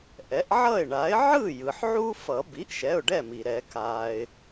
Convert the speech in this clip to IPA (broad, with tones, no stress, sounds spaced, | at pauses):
ʔ ɛ˩˥ ʔ ʕ ʌ˥˩ ɪ̯ ɳ a˩˥ ɪ̯ ʕ ɯ˥˩ j ɯ˩ ħ ʕ u˦ f ʌ˨˩˦ b i˩˥ ʔ ʃ ɛ˩˧˩ ʊ̯ ɖ ɛ˥˩ m i˩ ɾ ɛ˨˩˦ k a˩ ɪ̯